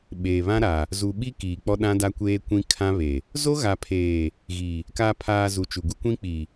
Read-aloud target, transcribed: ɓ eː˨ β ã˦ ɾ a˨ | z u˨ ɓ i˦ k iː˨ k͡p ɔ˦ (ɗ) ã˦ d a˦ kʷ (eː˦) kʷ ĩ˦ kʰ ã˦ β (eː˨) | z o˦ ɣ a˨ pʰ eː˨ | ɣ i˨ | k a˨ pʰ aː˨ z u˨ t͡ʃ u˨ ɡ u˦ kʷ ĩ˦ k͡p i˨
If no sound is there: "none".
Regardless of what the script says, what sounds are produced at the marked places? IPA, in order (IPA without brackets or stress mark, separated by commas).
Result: ɗ, eː˦, e˨